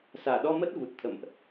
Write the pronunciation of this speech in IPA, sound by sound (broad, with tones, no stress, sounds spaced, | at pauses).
s aː˧˩ ɗ ɔ˧ m ə˦˥ t̚ v u˨˩ t̚ t̪ʰ ə̰˧˨ m ʔ